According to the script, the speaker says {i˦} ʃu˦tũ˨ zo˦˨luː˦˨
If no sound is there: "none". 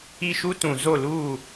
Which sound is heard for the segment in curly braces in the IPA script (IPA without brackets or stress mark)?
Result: i˦